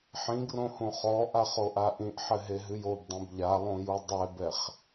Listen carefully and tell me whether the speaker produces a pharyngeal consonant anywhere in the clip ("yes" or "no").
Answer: yes